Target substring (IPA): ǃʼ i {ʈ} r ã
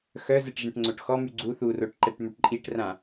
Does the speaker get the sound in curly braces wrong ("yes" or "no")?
no